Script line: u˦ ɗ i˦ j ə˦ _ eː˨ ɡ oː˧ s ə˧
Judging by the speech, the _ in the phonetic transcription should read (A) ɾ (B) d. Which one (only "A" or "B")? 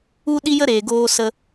A